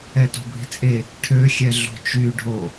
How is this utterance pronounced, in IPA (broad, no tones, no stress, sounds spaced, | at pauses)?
ɛ t o̤ bʱ i̤ t͡sʼ e | ʈʰ ø xʲ ɛ ɮ o̤ t͡ʃ y ɖʱ o